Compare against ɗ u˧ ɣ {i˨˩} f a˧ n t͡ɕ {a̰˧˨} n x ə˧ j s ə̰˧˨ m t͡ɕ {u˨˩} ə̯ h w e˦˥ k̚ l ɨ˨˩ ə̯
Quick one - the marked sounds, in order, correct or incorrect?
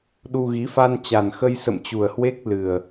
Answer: incorrect: i˨˦, incorrect: a˨˩, correct

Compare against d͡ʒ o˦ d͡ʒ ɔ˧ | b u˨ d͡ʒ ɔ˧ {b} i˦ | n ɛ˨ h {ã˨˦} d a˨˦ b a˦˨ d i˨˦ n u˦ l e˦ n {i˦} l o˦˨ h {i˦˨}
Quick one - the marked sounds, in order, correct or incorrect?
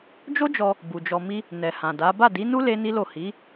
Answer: incorrect: m, incorrect: ã˨, correct, incorrect: i˨˦

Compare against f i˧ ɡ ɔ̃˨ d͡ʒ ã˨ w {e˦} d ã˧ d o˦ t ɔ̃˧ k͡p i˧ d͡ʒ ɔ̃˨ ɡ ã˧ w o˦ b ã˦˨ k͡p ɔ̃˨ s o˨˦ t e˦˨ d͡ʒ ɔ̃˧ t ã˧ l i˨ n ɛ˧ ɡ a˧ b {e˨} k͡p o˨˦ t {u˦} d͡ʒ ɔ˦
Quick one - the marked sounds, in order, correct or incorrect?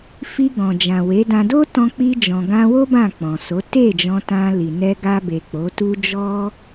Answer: incorrect: e˨˦, correct, correct

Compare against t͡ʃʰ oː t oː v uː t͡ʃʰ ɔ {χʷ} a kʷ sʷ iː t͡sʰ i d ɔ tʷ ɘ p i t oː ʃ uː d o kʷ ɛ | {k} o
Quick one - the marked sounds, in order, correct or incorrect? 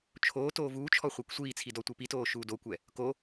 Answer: correct, correct

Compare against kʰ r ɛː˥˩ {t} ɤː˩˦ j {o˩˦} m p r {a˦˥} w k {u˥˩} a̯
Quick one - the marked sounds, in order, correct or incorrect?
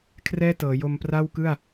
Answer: correct, incorrect: o˧, incorrect: a˥˩, incorrect: ɯ˥˩

